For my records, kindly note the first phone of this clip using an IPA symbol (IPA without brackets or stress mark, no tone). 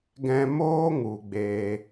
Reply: ɡ